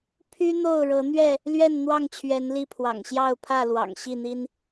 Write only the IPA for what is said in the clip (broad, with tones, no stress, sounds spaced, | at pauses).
pʰ y˦ n̪ o˥˨ ʊ̯ ɻ ɤ˨˦ n̪ ɥ ɛ˥˨ | l ɥ ɛ˥˨ n n̪ w ɑ˥˨ ŋ t͡ɕʰ ɥ ɛ˨˦ n l i˥˨ pʰ w ɑ̰˨˩ ŋ ɕ j ɑ˥˨ ʊ̯ pʰ ä˥˨ l w ɑ̰˨˩ ŋ ɕ i˥˨ n̪ i˦ n